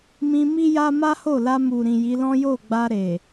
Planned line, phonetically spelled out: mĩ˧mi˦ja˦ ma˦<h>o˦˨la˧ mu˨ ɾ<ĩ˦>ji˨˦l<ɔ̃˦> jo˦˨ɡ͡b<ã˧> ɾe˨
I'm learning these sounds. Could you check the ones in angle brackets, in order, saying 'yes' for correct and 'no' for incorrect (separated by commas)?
yes, no, yes, no